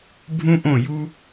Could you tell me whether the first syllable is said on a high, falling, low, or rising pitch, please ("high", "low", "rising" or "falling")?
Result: high